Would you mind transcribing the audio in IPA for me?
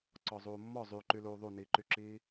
ǀ ɔ zˤ uː mː ɔ zˤ y ǃ y l uː ðˤ u n iː ǃ y ǁ iː

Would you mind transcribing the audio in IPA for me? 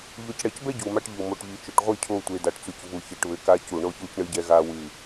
ʎ o˨ c ɽ ɛ˨ c b ɛ˦ ɟ u˨ m a˦ ʈ ʎ u˨ m o˨ ʈ ʎ i˨ t͡ʃ o˨ ʈ ʁʷ i˦˨ cʰ o˦˨ tʷ e˨ d a˨ ʈ t͡s u˨ c v u˨ ç e˨ ʈ β ɘ˨ k a˦ c u˨ ɳ o˦ ç u˦ c ɳ ɨ˦ ɟ ɛ˦ ɣ a˦ w ɨ˦˨

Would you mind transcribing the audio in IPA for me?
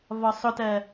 v ɒ sˤ ʊ t ɜ

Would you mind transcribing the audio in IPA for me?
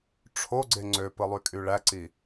ʈ͡ʂʰ o ɡ͡ǀ e ŋ͡ǀ ø p ɯ lˠ y kʼ y ɭ æ ǀ i

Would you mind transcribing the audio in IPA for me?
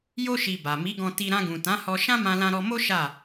j o˦ ʃ i˧ b a˨ m i˨˦ ɡ ɔ̃˧ t i˧ ɾ ã˧ ɡ ũ˨ t ã˨˦ h ɔ˧ ʃ ã˦ m ã˧ l ã˧ ɾ ɔ˧ m o˦ ʃ a˦˨

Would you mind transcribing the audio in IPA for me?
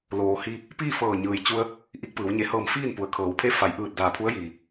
l oː˩ h i˧ | p iː˥˨ f ɤː˧˩ ɲ ɯː˩ j t͡ɕ u˧ ə̯ | ʔ i˧ k̚ p ɯː˩˧ w ɲ e˩˧ h ɤː˧˩ m f iː˥˨ n p u˩˧ ə̯ kʰ ɤː˩˧ w pʰ e˥˨ f a˩˧ j ʔ ɯː˧˩ t̚ d aː˧˩ pʰ u˧˥ ə̯ j iː˩

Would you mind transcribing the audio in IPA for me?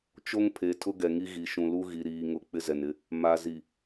t͡ʃ o˦ ŋ pʰ e˨ tʰ ʊ˦ ɡ ɛ˨ ŋ i˦ ɣ i˨ ʃ ũ˨ l u˦ ɣ i˨ ɾ iː˨ ŋ ʊ˨ k͡p ɪ˦ z ɛ˨ n ɪ˦ | m a˨ z i˨

